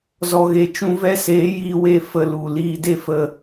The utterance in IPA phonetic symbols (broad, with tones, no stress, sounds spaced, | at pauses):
z ɔ˨ ɣ e˨ t͡ʃ ũ˧ v ɛ˦ s eː˨˦ j iː˧ w e˦˨ f ə˧ l u˨ l iː˧ d e˦ f ə˧